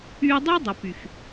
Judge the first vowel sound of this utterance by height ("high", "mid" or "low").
high